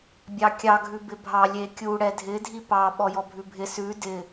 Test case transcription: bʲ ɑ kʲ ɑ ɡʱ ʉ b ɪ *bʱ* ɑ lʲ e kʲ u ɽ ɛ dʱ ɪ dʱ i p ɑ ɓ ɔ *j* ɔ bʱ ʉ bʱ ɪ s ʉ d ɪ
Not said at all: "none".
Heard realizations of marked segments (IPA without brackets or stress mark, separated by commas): bʱ, j